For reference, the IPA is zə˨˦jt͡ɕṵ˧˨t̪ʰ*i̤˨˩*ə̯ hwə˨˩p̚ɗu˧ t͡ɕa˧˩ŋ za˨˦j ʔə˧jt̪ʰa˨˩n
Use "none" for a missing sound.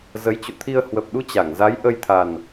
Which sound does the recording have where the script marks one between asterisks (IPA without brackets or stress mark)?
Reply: i˧